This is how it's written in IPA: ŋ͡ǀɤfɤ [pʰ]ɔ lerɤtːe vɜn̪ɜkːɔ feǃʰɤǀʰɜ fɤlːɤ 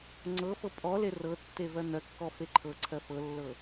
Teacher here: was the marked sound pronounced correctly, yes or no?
no